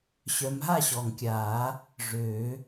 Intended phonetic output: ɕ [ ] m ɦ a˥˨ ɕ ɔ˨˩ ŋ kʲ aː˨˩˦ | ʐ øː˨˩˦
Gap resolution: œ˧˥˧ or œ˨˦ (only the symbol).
œ˨˦